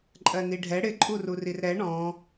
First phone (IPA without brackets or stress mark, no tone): ǃʼ